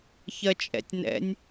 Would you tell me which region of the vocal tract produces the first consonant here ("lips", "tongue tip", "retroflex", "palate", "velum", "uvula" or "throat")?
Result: palate